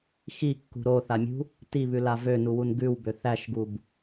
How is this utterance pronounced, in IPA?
x i kː ṳ ɾ o θ a mʲ ṳ | t i β ʉ l a v ø n u w u n ɡ ʉ w b ø θ æ ʃ ɡ u b

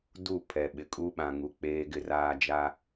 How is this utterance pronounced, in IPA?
d u˦˨ pʰ ɛ˨ ɓ ɪ˨ kʼ u˦ ɓ ã˨ ŋ u˨ k͡p eː˦ ɡ ɪ˦ r aː˦ d͡ʒ a˦

